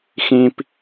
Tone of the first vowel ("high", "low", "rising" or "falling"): low